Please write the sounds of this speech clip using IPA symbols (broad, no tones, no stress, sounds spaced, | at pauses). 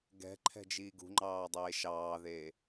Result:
ɡ ɛ̤ ǃʰ ɛ̤ d͡ʒ iː ɡ ṳ ŋ͡ǃ ɑː dˤ eː ʃ ɑː ð eː